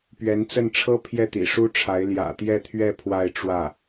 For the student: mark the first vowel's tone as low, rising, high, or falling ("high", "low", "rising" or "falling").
rising